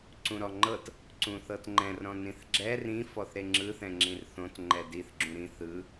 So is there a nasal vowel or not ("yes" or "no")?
yes